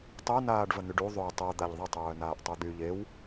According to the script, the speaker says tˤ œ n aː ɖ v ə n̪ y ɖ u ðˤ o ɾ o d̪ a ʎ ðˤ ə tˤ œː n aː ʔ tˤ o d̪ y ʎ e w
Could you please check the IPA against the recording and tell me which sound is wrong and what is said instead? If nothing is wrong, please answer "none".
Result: ɾ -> tˤ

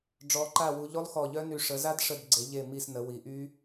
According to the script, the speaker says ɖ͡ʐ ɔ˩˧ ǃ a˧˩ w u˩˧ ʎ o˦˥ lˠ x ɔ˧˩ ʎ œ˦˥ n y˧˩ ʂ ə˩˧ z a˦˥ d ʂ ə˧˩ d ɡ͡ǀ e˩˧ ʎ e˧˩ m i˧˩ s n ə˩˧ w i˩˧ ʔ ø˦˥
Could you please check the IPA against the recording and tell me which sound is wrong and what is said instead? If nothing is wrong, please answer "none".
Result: ø˦˥ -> y˦˥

